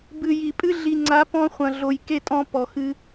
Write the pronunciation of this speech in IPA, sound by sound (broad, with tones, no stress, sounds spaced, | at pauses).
b ɨ˨ j i˨ pʼ ɨ˦ ɮ i˨ ŋ͡ǀ a˨˦ p ɔ̃˧ χʷ ɐ̃˨ ɮ o˨ j k e˦˨ tʼ ɔ̃˧ p ɔ˨ x ɨ˧